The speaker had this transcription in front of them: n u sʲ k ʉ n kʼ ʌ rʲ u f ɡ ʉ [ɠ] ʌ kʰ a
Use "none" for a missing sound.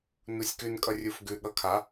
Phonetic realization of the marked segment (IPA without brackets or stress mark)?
ɠ